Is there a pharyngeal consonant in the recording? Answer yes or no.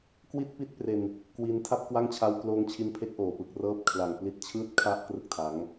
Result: no